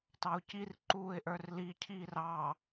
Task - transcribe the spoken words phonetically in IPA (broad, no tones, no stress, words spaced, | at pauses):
tɑʊ̯cir ǃuːɪ̯ʔə˞rli cʰiːrɑ